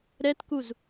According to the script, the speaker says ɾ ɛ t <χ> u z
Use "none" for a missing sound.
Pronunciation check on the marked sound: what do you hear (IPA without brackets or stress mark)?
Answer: k